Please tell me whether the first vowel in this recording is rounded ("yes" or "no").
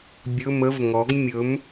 yes